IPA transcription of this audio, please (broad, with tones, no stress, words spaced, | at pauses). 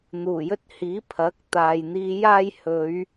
n̪uː˨˩jɵ˧t̚hiː˨˥ pʰɐ˨˥k̚t̪aː˨j n̪iː˨˧jaː˧j hɵ˨˧ɥ